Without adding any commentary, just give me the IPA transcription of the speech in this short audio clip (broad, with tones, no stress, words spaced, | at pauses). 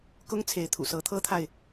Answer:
kʊ˥ŋ t͡sʰe˧˥ɪ̯t̪ʰṵ˨˩sɤ˧˥ t̪ʰɤ˥t̪ʰa˨ɪ̯